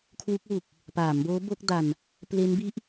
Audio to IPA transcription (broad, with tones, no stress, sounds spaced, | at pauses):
kʰ w u˦˥ k̚ w u˨˩ k̚ | p aː˩˦ m b oː˦˥ b o˦˥ k̚ d a˧ n | p l e˦˥ n b i˦˥ ʔ